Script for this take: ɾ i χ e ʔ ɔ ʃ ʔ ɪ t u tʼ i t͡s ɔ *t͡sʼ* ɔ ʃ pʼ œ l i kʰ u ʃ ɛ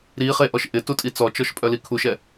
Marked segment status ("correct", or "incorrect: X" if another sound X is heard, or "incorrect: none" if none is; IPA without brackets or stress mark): incorrect: t͡ʃ